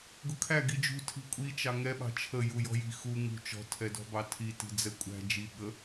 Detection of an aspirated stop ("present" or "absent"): present